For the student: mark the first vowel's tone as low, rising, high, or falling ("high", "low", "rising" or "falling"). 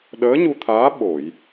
rising